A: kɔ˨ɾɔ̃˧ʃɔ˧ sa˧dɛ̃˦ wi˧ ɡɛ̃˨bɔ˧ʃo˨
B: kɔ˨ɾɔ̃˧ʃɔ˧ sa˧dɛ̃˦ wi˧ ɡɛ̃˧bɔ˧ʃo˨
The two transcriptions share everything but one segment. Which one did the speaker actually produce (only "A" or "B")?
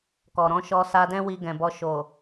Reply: A